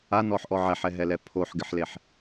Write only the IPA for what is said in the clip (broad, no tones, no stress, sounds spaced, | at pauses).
a n ɔ ħ ʔ ɔ ʕ ɛ ħ ɛ ɦ ɛ l ɛ pʰ o ħ ɡ ɪ ħ l e ħ